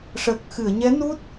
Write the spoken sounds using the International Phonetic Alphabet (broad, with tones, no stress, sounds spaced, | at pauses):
ʂ əː˨˩ k̚ x ɨ˨˩˨ ə̯ ɲ ɛ˧˥ n u˦˥ t̚